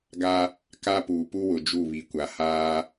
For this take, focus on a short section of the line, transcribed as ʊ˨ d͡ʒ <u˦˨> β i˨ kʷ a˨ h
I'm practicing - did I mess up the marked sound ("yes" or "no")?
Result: no